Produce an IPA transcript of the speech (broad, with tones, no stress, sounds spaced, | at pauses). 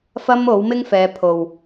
f ɐ˥ m o˨˥ w m ɪ˥ ŋ f ɛː˨˧ pʰ o˨ w